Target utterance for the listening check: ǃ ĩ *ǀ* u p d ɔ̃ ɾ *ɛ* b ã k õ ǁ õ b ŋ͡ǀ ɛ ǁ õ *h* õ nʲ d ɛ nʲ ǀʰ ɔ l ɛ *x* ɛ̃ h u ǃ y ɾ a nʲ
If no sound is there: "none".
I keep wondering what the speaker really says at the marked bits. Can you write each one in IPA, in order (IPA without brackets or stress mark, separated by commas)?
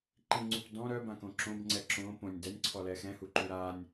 ŋ͡ǀ, œ, p, x